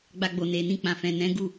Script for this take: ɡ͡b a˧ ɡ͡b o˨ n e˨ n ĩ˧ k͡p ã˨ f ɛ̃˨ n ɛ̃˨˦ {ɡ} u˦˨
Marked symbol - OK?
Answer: yes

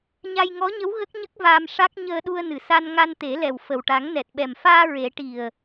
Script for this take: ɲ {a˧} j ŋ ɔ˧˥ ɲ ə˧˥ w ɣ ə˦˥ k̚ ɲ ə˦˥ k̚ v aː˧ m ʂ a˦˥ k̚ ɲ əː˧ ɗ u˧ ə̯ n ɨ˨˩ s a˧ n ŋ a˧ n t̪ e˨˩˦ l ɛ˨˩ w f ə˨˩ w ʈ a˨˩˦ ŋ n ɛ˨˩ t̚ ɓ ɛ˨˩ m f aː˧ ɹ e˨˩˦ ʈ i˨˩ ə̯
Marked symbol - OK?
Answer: yes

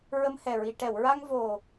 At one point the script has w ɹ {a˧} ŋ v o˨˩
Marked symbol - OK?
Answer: yes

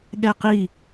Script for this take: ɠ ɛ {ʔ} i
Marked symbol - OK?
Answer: no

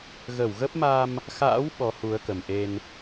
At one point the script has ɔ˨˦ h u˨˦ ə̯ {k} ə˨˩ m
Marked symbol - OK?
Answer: yes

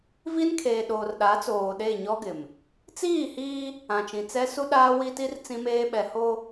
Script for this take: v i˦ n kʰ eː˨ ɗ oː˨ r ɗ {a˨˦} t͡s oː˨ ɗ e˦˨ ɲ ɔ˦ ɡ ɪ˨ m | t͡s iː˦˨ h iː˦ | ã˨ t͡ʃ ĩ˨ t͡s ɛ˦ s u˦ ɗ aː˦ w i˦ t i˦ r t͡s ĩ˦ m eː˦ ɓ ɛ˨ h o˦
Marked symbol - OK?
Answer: yes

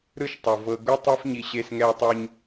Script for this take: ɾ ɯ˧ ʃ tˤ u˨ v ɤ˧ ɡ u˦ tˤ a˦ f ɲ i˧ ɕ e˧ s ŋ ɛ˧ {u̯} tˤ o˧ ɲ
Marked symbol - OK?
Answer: yes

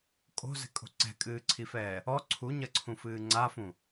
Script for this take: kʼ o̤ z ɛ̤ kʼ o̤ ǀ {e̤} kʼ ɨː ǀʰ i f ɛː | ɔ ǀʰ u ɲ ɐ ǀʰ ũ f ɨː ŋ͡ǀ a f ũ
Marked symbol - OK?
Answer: no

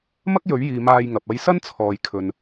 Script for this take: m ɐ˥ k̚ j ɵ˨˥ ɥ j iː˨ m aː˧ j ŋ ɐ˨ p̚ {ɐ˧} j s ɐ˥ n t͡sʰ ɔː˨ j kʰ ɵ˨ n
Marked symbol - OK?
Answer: yes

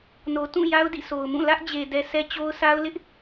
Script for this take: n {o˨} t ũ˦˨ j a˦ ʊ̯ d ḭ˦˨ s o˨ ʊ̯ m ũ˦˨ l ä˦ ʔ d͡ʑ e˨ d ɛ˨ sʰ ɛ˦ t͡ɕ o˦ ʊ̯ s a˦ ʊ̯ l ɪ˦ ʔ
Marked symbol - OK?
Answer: yes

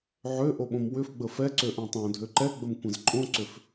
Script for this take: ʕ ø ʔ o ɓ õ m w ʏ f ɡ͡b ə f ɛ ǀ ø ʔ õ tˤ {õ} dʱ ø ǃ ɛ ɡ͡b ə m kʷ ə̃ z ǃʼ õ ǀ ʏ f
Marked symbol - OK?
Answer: yes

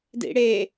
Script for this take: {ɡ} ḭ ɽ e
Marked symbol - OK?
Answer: no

